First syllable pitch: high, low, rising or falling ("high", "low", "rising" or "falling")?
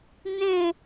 falling